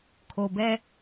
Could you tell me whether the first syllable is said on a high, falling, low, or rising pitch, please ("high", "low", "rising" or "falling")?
low